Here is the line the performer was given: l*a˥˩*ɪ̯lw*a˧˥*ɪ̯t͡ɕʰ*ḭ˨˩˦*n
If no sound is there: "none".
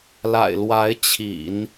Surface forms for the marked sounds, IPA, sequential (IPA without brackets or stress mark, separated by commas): a̰˨˩, a˧˥, ḭ˨˩˦